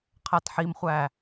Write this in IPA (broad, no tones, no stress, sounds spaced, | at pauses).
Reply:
qʰ æ t ħ i m χʷ æ